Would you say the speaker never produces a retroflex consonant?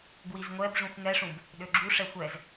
no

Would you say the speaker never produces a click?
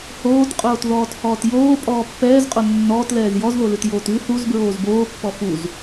yes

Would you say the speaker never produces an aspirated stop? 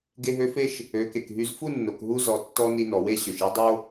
yes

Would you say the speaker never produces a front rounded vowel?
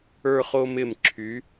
no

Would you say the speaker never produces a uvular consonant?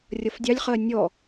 no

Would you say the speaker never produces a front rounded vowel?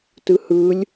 yes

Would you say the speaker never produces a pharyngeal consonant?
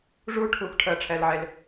no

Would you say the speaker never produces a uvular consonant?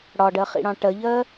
no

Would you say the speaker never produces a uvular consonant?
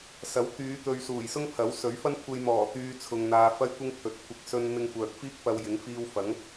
yes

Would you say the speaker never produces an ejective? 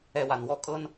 no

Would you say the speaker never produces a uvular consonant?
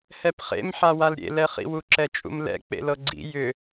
no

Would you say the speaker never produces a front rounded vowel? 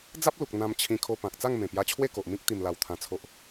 yes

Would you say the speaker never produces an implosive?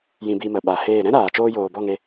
no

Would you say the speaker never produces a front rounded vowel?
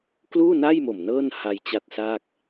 yes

